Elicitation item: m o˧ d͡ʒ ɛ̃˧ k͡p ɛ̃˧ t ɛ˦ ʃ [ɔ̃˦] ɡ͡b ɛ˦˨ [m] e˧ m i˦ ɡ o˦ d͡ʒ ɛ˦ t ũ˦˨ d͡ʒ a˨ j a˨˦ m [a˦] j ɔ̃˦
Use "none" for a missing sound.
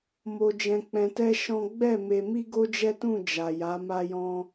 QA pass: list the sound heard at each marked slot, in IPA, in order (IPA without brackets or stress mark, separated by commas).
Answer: ɔ̃˦, m, a˦